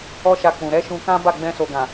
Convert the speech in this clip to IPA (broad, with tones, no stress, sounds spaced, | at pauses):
ɔ˦ ʃ a˧ k͡p ũ˨ ɾ ɛ˨˦ ʃ ũ˧ k ã˦ b a˦˨ ɡ͡b ɛ̃˧ s o˨ ɡ ã˨